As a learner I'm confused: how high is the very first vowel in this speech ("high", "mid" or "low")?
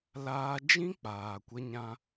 low